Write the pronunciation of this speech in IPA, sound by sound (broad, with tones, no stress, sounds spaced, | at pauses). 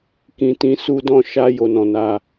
k ĩ˨ t ĩ˨˦ s u˧ d ɔ̃˧ ʃ a˧ j o˨ n ɔ̃˨ n a˧